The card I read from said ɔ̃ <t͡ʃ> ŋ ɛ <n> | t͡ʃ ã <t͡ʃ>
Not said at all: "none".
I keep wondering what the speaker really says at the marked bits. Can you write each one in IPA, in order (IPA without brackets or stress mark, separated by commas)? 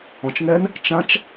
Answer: t͡ʃ, n, t͡ʃ